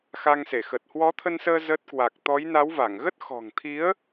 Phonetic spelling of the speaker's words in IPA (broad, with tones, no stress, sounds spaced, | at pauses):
x a˧ ŋ s e˧˩ x ə˨˩ t̚ h w ɔ˨˦ t̪ʰ ə˧ n s əː˧ z ə˦˥ t̚ k w a˨˩ k̚ t̪ ɔ˨˦ j n a˨˦ w v a˧˩ ŋ ɣ ə˦˥ t̚ x ɔ̤˨˩ ŋ t̪ʰ i˨˦ ə̯